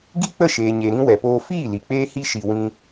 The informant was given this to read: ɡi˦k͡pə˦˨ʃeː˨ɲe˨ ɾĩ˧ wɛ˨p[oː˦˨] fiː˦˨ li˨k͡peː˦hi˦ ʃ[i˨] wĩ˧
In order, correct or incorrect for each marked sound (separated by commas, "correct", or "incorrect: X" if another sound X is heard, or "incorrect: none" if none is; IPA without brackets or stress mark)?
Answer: incorrect: oː˧, correct